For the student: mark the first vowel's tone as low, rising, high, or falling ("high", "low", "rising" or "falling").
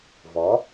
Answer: rising